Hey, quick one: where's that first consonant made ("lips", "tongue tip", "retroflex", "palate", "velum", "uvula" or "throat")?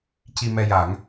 palate